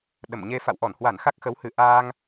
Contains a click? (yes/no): no